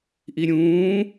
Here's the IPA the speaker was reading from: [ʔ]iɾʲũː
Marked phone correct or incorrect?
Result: correct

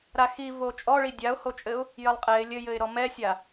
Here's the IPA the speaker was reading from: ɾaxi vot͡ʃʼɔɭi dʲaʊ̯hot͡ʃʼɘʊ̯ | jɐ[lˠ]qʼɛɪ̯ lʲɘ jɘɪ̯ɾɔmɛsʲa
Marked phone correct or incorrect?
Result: correct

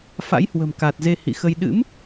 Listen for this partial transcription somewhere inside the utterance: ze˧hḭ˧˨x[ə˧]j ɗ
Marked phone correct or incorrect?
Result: correct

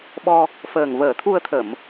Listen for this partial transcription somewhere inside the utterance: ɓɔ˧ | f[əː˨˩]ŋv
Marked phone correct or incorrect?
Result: correct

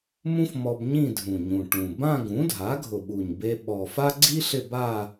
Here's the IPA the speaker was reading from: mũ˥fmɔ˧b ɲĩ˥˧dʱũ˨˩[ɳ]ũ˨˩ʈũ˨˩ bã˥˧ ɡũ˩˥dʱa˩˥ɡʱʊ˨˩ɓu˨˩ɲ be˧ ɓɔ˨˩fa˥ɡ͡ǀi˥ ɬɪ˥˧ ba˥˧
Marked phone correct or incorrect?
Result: incorrect: ɲ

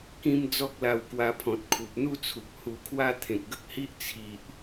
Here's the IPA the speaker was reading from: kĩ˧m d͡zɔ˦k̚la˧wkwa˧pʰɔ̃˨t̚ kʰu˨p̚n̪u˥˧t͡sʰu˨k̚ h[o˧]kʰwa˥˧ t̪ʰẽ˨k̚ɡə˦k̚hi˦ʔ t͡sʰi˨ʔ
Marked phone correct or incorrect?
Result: incorrect: u˧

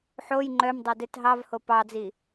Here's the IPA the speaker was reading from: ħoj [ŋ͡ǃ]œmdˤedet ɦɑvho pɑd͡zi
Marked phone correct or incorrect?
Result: correct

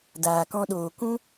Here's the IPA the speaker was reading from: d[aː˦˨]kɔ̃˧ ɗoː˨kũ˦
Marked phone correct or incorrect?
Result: incorrect: aː˨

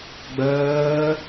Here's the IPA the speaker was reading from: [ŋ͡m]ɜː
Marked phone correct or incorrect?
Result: incorrect: ɡ͡b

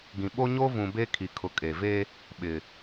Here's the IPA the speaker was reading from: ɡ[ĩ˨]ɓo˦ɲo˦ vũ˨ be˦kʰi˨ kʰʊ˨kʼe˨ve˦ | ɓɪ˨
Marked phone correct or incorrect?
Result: correct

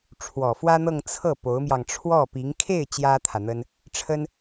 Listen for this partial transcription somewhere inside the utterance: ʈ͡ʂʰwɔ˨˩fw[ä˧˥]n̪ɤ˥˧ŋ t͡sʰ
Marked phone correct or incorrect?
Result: incorrect: ä˥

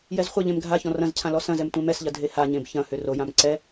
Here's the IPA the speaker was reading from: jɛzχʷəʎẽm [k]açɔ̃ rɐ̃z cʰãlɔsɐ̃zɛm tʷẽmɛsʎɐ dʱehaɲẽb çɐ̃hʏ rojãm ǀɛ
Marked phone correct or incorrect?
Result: incorrect: ɡʱ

